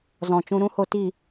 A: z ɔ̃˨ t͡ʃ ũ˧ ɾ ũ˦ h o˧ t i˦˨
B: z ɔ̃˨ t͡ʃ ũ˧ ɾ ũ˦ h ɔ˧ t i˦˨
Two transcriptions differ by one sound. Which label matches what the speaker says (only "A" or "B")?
A